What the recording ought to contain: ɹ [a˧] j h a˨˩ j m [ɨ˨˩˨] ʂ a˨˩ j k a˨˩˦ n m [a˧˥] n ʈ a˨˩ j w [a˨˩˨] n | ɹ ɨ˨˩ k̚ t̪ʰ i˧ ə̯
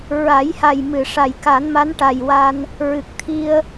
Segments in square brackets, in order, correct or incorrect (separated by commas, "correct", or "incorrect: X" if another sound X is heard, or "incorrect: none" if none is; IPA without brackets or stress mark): incorrect: a˨˩˦, correct, correct, incorrect: a˧